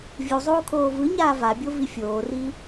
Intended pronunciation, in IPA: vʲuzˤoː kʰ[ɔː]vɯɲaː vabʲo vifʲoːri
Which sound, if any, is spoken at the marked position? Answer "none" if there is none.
oː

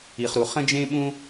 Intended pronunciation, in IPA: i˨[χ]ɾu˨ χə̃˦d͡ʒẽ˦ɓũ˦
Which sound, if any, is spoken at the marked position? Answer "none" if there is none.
χ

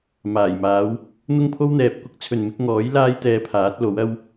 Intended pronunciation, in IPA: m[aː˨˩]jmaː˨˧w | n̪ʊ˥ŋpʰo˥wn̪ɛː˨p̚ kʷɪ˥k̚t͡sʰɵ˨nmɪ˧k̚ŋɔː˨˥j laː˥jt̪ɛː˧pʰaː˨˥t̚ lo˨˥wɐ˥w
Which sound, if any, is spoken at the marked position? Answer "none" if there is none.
aː˨˩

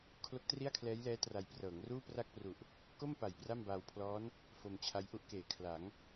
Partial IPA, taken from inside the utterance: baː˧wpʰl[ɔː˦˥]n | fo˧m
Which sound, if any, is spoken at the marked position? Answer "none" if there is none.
ɔː˦˥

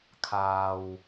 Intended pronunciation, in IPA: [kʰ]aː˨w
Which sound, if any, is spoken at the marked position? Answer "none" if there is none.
kʰ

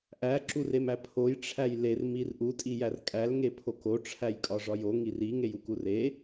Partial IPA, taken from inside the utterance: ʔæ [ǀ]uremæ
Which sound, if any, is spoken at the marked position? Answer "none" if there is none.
ǁ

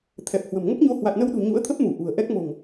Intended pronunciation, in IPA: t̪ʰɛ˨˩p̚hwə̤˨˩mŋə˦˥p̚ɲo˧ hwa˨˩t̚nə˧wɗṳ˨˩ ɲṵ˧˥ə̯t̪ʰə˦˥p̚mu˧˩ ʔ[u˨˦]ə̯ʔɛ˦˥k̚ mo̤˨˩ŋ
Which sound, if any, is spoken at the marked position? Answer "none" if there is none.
ṳ˨˩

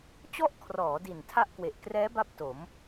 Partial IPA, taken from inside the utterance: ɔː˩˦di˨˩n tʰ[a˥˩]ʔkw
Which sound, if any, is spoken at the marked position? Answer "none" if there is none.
a˥˩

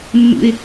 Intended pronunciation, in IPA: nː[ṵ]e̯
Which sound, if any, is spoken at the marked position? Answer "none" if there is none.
ṵ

